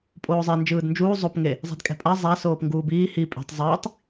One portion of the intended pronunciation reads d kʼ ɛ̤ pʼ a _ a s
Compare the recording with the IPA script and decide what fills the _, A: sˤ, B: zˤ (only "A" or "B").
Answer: B